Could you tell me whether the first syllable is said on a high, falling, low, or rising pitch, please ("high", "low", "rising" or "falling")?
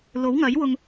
rising